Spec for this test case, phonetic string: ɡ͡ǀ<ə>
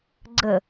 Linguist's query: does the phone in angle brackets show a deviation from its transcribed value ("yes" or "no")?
no